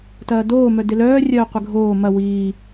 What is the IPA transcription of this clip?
t ɐː d oː m œ d ɪ l œː rʲ œː qʷ ɪ ɡʱ oː m ɐ w iː

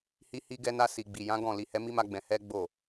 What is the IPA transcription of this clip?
h i˧ h i˧ ɡ ɛ˧ n a˧ s i˨ ɡ͡b i˨ j ã˨˦ ɡ ɔ̃˦˨ l i˧ h ɛ˦ m i˦ m a˦ ɡ͡b ɛ̃˧ h ɛ˦ ɡ͡b o˦˨

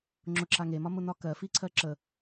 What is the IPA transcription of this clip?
ŋ͡ǁ ʊ ǁ a ŋ e m ɒ m ʊ n ɒ k ɜ f i ǀʰ ɜ ǁ ə

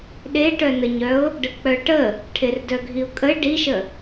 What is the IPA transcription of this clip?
ɗ e ʈ œ n ə ɲ œ ʊ̯ | ɖ ə k͡p œ ʈ ə | ʈʰ e r d œ ɡʱ i ʊ̯ kʼ ə ɪ̯ ɖ i ʃ ə

